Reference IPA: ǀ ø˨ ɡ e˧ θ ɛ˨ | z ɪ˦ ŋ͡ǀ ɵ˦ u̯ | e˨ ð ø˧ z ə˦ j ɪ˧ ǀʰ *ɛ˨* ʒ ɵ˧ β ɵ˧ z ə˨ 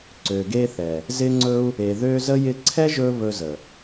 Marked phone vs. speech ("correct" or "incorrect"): incorrect